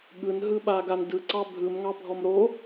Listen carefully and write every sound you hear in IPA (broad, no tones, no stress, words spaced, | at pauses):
ɠɯnɦɯɓaɡan dɯǀɑ bʱɯmŋɑbʱɔm ɾo